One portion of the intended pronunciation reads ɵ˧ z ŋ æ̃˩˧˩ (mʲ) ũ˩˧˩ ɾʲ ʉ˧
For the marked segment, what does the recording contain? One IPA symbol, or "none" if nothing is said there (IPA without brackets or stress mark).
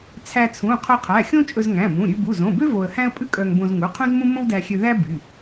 m